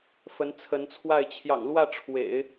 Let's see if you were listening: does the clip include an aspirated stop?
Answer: yes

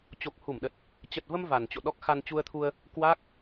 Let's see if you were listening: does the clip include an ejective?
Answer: no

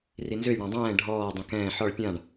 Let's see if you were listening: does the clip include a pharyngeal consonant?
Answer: yes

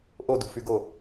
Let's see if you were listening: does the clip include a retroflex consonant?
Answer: no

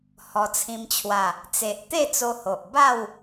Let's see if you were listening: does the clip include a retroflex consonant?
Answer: no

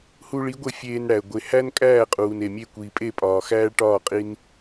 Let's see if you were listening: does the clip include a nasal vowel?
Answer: no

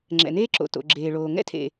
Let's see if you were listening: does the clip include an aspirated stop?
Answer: yes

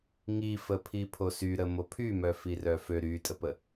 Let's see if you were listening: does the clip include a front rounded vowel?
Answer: yes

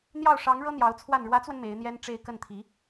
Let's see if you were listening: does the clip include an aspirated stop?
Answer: yes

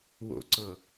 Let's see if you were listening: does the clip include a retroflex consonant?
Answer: no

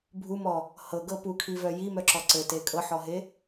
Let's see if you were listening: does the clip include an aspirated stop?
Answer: yes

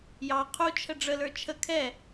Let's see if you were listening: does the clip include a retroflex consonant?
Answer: yes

